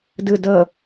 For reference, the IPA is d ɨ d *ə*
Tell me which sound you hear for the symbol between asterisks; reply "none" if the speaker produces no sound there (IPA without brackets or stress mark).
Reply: ə